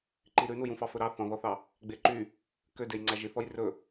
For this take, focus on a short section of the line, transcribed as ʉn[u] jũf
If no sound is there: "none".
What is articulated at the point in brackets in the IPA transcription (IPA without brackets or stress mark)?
u